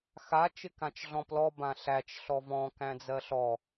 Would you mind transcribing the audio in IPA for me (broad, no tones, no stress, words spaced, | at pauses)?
xa t͡ʃɪkãt͡ʃɮɔ̃plɔ bãɬæt͡ʃ ɬɔvɔ̃ kæ̃d͡zɜɬɔ